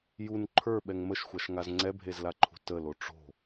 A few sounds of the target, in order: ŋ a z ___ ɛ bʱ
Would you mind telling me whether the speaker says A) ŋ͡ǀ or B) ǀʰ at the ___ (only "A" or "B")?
A